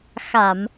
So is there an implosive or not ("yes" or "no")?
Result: no